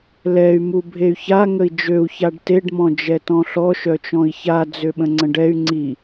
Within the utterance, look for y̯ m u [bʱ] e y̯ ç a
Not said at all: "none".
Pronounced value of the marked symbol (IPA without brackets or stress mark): bʱ